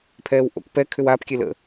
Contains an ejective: no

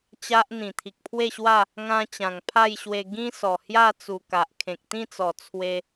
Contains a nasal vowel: yes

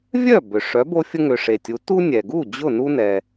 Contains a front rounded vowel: yes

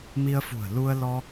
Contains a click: no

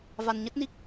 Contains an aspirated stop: no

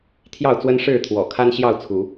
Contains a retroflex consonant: yes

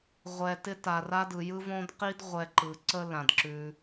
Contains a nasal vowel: yes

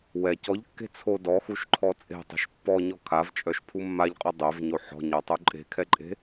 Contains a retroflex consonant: no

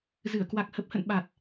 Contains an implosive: yes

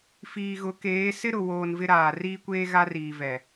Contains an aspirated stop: no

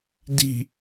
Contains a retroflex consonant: no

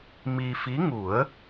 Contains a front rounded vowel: no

